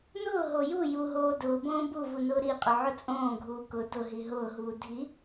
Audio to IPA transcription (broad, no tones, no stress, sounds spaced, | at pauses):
n ʊː ɦ o j u j u ɦ oː d ʊː b õː b u v u n ʊː ɾ i qʼ ʊ ʕ ʊ t͡sʼ õː ɡʱ uː k ʊ d ʊ ɦ i ɦ ʊː ɦ uː dʱ i